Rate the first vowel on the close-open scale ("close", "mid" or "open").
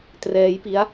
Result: mid